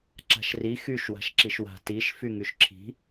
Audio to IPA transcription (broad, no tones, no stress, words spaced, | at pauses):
ǁa̤ʃri xyʃ wa̤ʃǁiʃwa̤ tiʃ fyŋyʃǁʰi̤